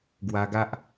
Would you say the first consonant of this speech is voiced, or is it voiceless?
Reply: voiced